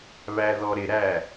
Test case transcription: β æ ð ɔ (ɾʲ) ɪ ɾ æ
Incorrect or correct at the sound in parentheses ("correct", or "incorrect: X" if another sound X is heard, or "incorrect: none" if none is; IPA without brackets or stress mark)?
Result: incorrect: ɾ